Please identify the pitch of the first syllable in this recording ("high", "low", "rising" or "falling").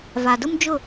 low